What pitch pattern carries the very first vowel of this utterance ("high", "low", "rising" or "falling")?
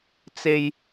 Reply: low